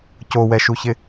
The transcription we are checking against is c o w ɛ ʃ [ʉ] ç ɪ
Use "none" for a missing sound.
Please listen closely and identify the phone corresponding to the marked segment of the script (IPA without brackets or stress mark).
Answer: u